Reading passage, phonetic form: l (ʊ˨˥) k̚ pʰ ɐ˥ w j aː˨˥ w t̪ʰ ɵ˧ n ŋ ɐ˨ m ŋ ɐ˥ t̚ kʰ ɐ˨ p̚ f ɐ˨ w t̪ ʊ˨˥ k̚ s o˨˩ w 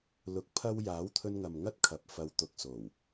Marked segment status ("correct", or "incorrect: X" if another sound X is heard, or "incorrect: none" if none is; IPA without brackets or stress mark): incorrect: ʊ˧